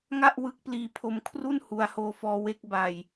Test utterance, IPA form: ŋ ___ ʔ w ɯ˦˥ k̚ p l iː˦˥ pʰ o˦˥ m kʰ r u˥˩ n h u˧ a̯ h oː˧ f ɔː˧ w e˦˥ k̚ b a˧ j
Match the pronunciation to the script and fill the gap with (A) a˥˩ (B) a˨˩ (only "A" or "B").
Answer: A